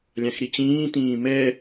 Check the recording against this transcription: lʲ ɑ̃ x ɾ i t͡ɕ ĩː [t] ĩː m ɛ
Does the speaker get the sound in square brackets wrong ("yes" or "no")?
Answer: no